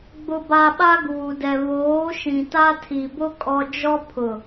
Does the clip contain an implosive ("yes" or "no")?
yes